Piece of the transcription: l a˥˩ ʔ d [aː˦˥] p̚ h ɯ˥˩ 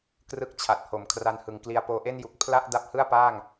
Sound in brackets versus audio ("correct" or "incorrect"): incorrect